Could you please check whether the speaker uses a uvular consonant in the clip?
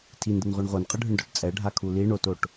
yes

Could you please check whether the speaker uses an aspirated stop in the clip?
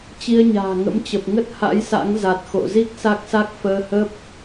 no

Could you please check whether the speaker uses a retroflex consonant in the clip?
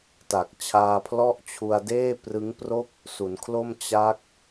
no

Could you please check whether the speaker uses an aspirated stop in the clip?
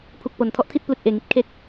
yes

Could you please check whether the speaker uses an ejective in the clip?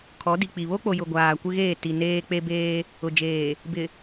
no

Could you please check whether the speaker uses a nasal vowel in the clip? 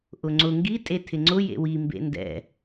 no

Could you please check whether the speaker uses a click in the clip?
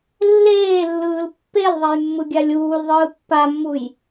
no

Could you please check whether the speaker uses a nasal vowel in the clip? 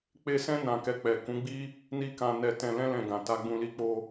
yes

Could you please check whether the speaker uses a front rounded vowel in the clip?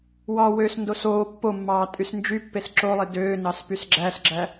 yes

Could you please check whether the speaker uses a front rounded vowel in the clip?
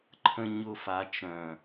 yes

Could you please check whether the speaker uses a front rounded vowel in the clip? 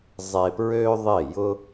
yes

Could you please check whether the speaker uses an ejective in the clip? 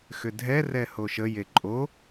yes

